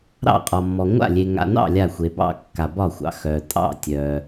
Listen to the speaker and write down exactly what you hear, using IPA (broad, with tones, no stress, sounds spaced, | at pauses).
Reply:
ɾ ɑ̰˥˨ qʼ ɒ˨ mː ɔ˨ ŋʷ a̰˥˨ lʲ e˨ ŋ a̰˨ n ɑ̰˥˨ lʲ a˥˨ xʷ e˨ b ɑ̰˥˨ kː a˨ b ɒ˥˨ xʷ ɑ̰˨ x œ˨ tʼ ɑ̰˥˨ tʲ œ˨